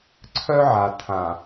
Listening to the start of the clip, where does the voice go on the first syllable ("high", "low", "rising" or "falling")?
high